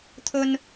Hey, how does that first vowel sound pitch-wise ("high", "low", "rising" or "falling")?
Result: high